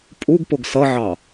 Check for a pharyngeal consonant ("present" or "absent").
present